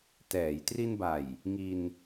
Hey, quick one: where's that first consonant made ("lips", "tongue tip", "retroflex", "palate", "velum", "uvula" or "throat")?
tongue tip